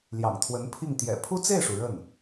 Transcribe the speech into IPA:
l j ɑ̰˨˩ ŋ t̪ʰ w ə˧˥ n pʰ i˥˩ ŋ t̪ j ɛ̰˨˩ pʰ u˥ t͡s e˥˩ ɪ̯ ʂ u˩ ɻ ə˥˩ n

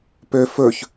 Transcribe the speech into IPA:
p ø f ɵ ç

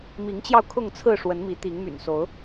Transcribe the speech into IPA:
m i˨˦ ŋ t͡ɕ j ɑ˧ ʊ̯ kʰ ʊ˥˨ ŋ t͡sʰ ɹ̩˥˨ ʂ w ə˨˦ n m i˨˦ t̪ i˨˦ ŋ m y̰˨˩ n s o˨˦ ʊ̯

